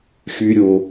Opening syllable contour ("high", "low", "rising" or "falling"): low